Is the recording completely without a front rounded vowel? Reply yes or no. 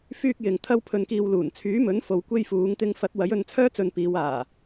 no